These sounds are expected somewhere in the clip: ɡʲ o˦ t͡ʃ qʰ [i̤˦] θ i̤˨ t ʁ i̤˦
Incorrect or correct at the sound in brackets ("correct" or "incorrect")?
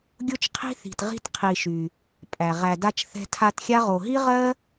correct